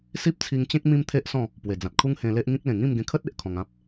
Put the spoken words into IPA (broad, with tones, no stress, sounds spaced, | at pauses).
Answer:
s i˦ p̚ t͡sʰ i˧ ŋ t͡ɕ ẽ˦ k̚ m ĩ˦ m t̪ʰ e˦ ʔ s ɔ̃˥˧ | p w e˨˩ d͡z ã˨ t̚ kʰ u˦ ŋ h ẽ˧ l e˦ ʔ ŋ ĩ˦ k̚ l ẽ˨˩ ŋ ĩ˥˧ m ɡ ẽ˧ kʰ ə˦ t̚ e˦ ʔ kʰ ɔ̃˧ ŋ ã˦ p̚